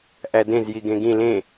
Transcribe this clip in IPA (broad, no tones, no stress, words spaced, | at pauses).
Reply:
ʔædẽz jiɡẽɡĩ lẽ